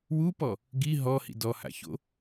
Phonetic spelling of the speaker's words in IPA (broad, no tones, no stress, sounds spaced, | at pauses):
w u p ɔ | ɡ i ɦ ɔ h ḭ d ɔ h a̰ ç o̰